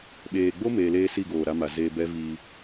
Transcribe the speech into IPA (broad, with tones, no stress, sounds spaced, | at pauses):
ɓ eː˨ ɡ͡b o˦ m eː˧ l eː˦ s i˦˨ ɡ oː˨ ɾ a˧ m a˨ z eː˧ b ɛ˦ v iː˧